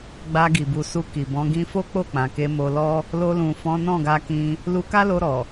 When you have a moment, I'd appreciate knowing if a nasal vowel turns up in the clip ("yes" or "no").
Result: yes